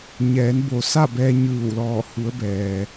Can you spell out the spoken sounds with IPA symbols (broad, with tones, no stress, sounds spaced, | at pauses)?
ɲ ɛː˩˧ n b o˩ s a˥˨ b ɛː˧ ɲ ɯː˧˩ w l ɔː˧˩ h u˩˧ ə̯ b ɛː˩